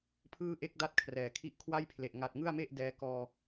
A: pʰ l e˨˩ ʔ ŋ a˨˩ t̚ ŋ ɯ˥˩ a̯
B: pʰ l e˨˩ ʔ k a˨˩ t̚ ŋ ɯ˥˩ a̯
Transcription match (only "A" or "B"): A